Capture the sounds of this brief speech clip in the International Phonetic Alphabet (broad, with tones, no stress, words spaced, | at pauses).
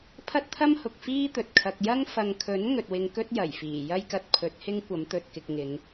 pʰɐ˥t̚t̪ʰɐ˥mhʊ˨k̚ fiː˥t̪ɵ˨t̚kʰɐ˧k̚ jɐ˥ŋ fɐ˨ŋkʰɵ˨˥n ŋɵ˨t̚wɪ˧ŋkɵ˥t̚ jɐ˨˩jfiː˨˩ jɐ˥jkɐ˧t̚pʰɵ˨˥t̚hɪ˥ŋ kʷɐ˨˥mt̪ɵ˨t̚kɪ˨k̚ ŋɪ˨˧ŋ